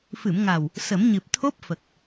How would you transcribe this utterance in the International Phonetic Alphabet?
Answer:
f ɨ˨˩˨ m ŋ a˨˩ w | s ə˨˩˦ m ɲ ɨ˨˩ p̚ t̪ʰ o˦˥ p̚ f ə˨˩ k̚

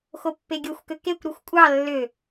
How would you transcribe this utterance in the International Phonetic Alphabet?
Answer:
x o pː e ɡʲ o xʷ k ø k e kʷ ɾ u xʷ kʷʼ ɑ lː ø

